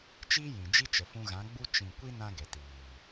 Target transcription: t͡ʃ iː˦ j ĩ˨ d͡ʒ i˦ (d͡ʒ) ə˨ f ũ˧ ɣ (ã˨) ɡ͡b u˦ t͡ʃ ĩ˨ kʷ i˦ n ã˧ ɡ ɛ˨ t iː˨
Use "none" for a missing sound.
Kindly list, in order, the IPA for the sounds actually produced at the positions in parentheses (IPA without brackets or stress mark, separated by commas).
t͡ʃ, ã˨˦